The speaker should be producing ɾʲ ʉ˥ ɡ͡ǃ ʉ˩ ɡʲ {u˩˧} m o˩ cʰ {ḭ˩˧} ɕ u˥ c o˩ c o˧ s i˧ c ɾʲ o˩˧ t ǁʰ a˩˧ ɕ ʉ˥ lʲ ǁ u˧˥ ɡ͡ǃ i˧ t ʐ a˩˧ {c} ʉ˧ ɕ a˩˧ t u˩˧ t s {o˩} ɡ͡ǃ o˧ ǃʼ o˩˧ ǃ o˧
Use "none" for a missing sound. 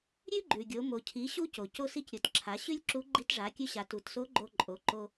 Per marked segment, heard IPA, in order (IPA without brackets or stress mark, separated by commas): o˩˧, i˩˧, kʲ, o˧˥